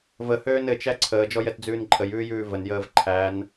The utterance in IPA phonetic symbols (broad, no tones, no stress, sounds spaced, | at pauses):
v ə h øː n ɘ t͡ʃ æ ǀʰ əː d͡ʒ ɔ j ɛ t d͡z ʉː n ǃʼ ə j ʉː j ʉː v ə n j əː v ǃʰ æ n